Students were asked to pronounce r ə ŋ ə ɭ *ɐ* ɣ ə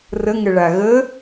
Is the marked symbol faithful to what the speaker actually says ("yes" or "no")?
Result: no